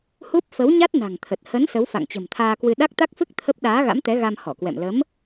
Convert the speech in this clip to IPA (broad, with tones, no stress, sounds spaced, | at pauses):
h u˦˥ p̚ f ə˨˦ w ɲ a˦˥ t̚ n a̤˨˩ ŋ t̪ʰ ə˨˩ t̚ h ə˨˦ n s ə˨˦ w f a̰˧˨ ŋ t͡ɕ ə̤˨˩ m t̪ʰ aː˧ k w ɨ˧ ɗ a˦˥ k̚ t̪ a˦˥ k̚ f ɨ˦˥ k̚ t̪ʰ ə˦˥ p̚ ɗ aː˨˦ ɣ a̰˧˥ m t̪ ɛ˨˦ ɣ a˧ m h ɔ˧˩ k w ɛ̰˧˨ m l ə˨˦ m